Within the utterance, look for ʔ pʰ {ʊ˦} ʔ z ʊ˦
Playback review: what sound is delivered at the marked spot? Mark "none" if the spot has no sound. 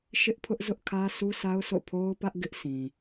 ʊ˦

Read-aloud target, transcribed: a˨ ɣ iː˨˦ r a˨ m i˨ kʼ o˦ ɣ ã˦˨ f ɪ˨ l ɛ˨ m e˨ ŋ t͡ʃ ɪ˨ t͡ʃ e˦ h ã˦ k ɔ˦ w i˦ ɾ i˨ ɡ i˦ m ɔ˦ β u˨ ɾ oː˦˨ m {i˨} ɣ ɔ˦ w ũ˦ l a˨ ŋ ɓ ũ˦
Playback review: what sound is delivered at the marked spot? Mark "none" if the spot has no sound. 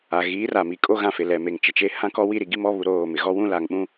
ɪ˨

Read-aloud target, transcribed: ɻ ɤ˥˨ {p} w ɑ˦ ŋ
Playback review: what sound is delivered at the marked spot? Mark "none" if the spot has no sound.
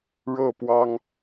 p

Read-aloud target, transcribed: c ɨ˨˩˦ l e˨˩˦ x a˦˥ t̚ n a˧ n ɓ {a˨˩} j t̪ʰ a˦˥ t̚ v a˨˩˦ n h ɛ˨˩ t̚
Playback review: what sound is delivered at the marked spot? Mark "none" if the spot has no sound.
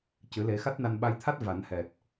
a˧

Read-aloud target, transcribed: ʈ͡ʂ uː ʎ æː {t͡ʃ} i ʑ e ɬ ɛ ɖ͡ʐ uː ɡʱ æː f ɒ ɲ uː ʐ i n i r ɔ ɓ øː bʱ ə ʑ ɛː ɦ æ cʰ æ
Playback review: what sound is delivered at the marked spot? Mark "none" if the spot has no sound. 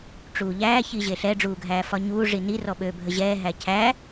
ç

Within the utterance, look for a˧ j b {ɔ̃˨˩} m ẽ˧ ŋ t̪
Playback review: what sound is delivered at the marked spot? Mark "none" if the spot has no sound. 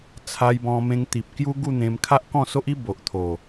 ɔ̃˧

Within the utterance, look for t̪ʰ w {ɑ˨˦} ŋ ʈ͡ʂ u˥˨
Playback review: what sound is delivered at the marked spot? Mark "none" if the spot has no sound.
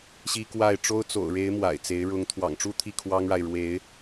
ɑ̰˨˩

